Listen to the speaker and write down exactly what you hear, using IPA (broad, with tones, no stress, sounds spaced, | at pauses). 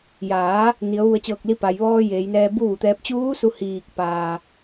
j aː˩˧ | n i˩˧ ə̯ ʋ u˧˩ ə̯ t͡ɕ ɤː˧˩ k̚ l i˧ p a˩ j ʋ ɔː˧ j eː˩˧ j n ɛː˧ b u˥˨ ʋ u˩ t̪ ɛː˧ p̚ t͡ɕ uː˧˥ s u˧˩ h iː˧˩ k̚ p aː˩